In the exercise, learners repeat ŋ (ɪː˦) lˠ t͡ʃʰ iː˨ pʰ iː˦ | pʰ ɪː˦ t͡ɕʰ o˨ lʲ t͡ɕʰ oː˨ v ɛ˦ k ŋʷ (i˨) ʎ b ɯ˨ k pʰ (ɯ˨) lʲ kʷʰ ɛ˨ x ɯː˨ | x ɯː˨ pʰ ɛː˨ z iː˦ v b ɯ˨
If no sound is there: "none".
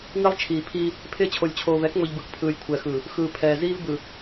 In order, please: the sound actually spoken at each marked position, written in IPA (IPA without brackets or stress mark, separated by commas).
ɪː˦, i˨, ɯː˨